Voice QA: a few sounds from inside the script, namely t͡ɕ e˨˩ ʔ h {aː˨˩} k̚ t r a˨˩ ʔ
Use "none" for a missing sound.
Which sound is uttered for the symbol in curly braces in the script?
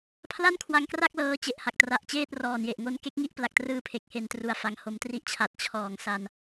a˨˩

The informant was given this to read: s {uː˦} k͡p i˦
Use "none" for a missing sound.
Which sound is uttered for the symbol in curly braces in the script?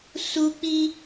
u˦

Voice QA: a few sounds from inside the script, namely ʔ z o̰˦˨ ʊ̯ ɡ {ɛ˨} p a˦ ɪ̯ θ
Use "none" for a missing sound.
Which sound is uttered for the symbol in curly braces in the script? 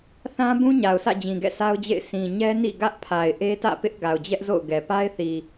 ɛ˨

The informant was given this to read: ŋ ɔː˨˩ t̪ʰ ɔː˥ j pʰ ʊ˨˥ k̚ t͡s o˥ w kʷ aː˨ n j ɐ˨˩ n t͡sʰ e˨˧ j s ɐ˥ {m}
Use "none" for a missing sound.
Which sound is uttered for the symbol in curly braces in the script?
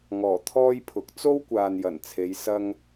ŋ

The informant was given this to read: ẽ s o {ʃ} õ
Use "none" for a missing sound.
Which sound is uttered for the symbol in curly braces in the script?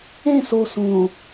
s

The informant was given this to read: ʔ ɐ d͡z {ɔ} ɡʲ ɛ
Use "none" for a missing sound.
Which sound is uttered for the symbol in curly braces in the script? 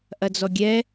ɔ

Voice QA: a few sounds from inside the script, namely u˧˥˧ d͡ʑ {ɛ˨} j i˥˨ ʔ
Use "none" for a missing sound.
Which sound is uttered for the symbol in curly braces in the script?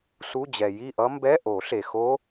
ɛ˨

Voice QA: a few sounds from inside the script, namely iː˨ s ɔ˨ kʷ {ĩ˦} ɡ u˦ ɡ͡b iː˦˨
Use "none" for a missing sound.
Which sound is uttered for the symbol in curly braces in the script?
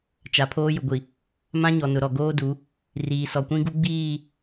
ĩ˦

